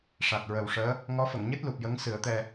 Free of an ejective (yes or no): yes